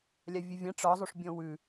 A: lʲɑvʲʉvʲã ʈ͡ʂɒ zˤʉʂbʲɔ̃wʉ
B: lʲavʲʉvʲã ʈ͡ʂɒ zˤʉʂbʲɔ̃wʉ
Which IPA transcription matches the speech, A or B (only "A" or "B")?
B